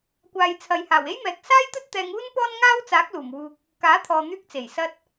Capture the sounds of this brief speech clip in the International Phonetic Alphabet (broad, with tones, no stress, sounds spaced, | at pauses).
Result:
kʷ aː˨ j t͡sʰ ɐ˨ j h aː˨˩ w e˥ j m ɛː˨ k̚ s aː˥ j t̪ ɵ˥ t̚ t̪ ɛː˧ ŋ uː˥ n p ɔː˥ n ŋ aː˥ w t͡s aː˨˥ k̚ l uː˨˩ m w uː˨ k̚ | k aː˨˥ t̪ʰ ɔː˨ n̪ yː˧ k̚ t͡s e˨˩ j s ɐ˧ t̚